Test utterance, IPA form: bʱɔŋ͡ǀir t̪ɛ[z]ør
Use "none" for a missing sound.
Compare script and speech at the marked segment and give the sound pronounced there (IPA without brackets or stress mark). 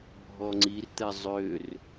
zˤ